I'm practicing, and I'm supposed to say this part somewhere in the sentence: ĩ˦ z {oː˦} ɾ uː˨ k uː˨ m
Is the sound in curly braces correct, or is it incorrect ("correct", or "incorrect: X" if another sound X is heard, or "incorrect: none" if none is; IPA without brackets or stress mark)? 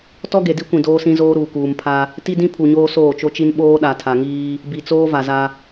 correct